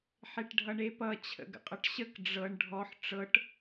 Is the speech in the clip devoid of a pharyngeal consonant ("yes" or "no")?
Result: no